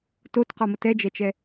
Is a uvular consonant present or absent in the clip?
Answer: present